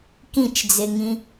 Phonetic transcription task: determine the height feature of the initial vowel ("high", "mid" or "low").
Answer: high